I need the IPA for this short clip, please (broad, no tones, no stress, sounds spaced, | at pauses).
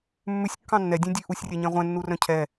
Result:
mː ʉ sʲ kː ɑ̃ nː ɛ dʲ ẽ dʲ ʉ ʔ u sʲ rʲ ɛ ɲ ɛ̃ ʁʷ ɛ̃ nː u r œ̃ cʰ ɛ